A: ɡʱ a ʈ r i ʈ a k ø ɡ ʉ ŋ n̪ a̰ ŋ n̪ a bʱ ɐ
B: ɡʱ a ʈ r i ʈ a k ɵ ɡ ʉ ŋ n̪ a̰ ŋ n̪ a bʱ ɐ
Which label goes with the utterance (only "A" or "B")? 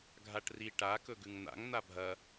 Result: B